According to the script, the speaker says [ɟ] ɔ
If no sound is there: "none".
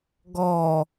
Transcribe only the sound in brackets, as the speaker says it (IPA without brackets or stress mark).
ɡ